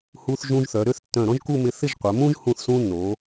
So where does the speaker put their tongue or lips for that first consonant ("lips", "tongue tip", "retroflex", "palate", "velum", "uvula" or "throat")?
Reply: throat